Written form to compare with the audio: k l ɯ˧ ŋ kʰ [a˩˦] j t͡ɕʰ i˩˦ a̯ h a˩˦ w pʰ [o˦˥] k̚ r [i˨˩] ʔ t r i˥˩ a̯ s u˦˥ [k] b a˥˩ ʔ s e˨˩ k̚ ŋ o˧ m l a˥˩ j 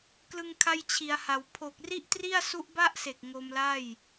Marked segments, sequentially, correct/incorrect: incorrect: a˧, incorrect: o˨˩, incorrect: i˥˩, incorrect: ʔ

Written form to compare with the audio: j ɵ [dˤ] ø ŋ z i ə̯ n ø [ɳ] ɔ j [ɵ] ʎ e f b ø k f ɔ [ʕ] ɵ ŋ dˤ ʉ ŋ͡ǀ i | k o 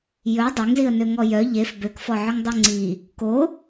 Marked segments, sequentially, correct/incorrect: correct, incorrect: ŋ, incorrect: œ, correct

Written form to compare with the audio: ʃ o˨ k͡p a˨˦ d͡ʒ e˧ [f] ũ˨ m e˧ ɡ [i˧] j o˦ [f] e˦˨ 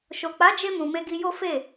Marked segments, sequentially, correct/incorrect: incorrect: m, correct, correct

